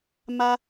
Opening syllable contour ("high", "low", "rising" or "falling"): high